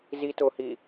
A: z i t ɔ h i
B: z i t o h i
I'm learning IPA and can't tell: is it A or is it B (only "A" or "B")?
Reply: B